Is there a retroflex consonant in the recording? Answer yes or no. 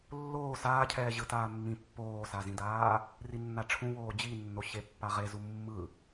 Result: yes